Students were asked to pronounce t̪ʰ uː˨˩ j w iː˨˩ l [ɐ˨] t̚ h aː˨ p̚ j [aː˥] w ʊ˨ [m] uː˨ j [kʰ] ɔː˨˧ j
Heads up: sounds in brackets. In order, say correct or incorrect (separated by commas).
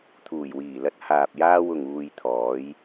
correct, incorrect, incorrect, incorrect